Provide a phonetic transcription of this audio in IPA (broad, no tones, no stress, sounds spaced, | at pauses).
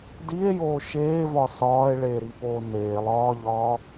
d i e̯ j oː ʃ eː v ɒ s ɒː e̯ ɭ eː ɾ i p oː n eː lˠ ɒː ʎ ɒː